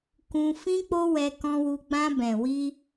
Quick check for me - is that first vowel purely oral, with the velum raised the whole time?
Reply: no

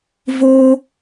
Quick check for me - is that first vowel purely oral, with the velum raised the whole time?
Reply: yes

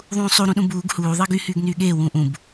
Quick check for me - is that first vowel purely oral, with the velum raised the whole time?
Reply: no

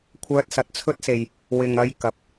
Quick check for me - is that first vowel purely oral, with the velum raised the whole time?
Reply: yes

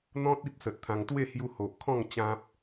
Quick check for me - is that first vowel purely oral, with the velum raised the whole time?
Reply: no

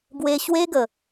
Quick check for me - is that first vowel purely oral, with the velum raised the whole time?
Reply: yes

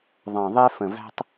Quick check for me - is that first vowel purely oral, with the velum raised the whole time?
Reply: no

